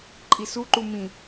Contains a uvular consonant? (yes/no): no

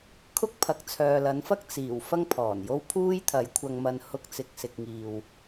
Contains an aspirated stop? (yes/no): yes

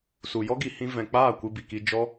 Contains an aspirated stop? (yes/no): no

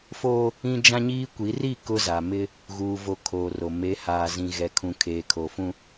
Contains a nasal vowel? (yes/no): yes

